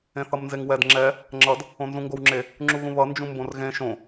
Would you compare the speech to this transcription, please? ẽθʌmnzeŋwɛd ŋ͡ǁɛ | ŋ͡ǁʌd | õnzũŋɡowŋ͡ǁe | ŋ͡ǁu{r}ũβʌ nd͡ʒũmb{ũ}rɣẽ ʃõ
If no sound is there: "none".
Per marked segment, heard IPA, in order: ɣ, õ

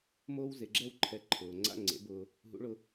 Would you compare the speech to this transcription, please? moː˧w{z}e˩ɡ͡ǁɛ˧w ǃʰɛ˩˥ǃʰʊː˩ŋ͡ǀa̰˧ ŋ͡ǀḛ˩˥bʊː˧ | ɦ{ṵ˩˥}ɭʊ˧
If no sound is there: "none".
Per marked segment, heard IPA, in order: z, ṵ˩˥

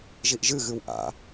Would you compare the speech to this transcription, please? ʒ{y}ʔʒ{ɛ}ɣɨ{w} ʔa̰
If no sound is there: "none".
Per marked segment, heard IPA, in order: i, ɨ, w

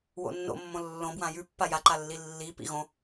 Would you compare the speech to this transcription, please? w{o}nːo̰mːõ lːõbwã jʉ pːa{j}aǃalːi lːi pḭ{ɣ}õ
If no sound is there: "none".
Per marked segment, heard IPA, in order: o̰, j, ɣ

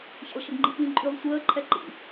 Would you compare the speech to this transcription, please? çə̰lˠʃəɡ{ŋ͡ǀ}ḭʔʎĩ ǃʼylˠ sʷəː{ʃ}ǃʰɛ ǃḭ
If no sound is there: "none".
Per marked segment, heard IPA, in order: ŋ͡ǃ, none

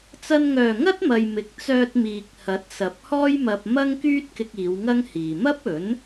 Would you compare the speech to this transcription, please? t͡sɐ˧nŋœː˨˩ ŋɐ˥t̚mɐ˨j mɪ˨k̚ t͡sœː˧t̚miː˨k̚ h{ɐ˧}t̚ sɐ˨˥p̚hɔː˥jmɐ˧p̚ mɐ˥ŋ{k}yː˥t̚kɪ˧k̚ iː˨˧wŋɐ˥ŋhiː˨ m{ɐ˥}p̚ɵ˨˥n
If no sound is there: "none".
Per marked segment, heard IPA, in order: ɐ˨˥, k, ɐ˥

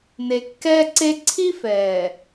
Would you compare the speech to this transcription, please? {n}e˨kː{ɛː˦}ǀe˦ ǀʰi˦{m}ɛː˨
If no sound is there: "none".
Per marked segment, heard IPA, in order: n, ɛː˦, f

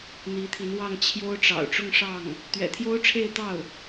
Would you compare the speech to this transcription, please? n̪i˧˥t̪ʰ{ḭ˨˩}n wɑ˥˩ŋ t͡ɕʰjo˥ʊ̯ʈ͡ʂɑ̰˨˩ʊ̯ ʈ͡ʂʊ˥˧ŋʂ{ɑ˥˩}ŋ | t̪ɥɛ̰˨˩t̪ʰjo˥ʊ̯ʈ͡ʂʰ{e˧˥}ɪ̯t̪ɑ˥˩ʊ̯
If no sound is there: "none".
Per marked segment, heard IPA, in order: i˧˥, ɑ˥˩, e˥˧

